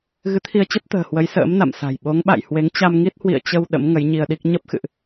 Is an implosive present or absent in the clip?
present